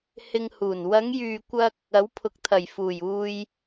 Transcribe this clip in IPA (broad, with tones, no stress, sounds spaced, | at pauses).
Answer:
h ɪ˧ ŋ h uː˨˩ n w ɐ˨˧ ŋ j yː˨ kʷ ɐ˧ k̚ | ɐ˨˥ w pʰ ʊ˨ k̚ t̪ʰ ɐ˨˩ j f uː˨˩ j uː˧ j